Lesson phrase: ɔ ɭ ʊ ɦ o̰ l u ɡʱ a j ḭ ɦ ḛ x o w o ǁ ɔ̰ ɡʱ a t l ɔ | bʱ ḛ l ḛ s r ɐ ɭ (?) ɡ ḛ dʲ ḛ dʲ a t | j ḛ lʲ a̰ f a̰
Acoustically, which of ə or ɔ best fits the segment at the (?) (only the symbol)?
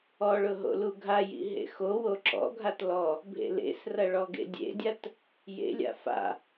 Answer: ɔ